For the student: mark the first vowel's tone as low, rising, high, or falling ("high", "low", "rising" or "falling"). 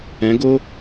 rising